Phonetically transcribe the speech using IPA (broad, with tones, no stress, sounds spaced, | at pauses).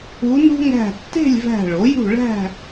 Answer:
u˧˥ n ṳ˥ ŋ æ̤˧˩ tː e̤˥˨ lʲ v æ̤˧˩ ɭ o˩˥ j ṳ˥˨ ɭ æ̤˥˨